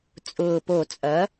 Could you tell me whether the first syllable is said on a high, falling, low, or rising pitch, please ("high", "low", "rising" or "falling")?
low